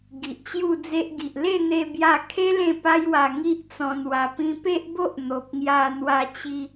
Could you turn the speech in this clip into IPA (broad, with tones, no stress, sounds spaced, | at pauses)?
ɡ i˨ ʔ t͡ɕ j u˥˧ d͡z e˦ ʔ ɡ i˨ ʔ l e˥˧ n̪ e˧ b j a˧ kʰ e˦ l ẽ˥˧ p a˦ j w a˧ ŋ i˦ ʔ t͡s ɔ̃˧ n w a˧ p ĩ˧ p e˦ ʔ b o˦ ʔ n̪ o˨ p̚ ŋ j a˧ n̪ w a˧ t͡ɕ i˦